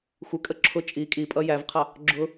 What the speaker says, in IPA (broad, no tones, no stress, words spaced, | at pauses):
xʷɪkʼə ǁʰʊ t͡ʃʼi kʼipʼʌ jævqʰɑ | ɡ͡ǁʊ